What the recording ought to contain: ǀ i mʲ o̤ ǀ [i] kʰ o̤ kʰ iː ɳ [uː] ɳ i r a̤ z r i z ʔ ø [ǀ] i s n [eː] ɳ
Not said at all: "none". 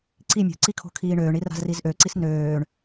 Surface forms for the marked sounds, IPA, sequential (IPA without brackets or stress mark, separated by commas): i, øː, ǀ, øː